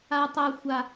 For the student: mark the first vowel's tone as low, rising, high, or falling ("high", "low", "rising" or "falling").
low